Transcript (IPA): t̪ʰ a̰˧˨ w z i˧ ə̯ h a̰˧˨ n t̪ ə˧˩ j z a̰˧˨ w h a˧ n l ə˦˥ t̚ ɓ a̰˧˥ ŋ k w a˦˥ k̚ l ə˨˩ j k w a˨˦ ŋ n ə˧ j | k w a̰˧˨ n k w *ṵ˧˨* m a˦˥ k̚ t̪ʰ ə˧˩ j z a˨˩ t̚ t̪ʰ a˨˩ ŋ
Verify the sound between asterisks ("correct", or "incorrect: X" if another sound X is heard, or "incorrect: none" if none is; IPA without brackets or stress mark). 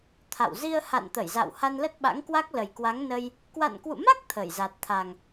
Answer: correct